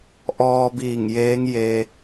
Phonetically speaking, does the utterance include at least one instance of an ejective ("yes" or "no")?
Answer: no